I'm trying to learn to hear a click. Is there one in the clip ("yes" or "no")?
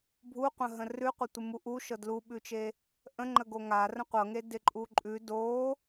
yes